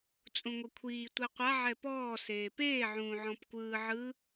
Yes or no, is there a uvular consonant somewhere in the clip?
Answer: yes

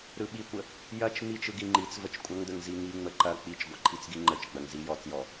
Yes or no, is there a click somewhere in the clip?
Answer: yes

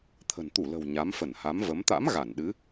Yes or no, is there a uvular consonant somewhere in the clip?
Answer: no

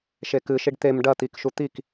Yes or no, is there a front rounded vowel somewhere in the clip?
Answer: no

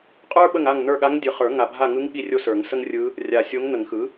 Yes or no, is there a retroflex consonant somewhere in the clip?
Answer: no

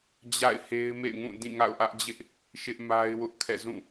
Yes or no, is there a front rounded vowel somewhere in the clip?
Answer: no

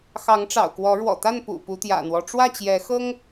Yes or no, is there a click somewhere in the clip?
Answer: no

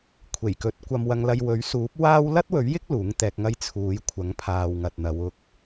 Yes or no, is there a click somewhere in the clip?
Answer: no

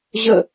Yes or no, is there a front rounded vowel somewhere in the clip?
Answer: no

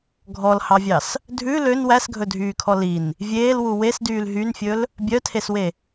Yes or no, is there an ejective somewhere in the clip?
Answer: no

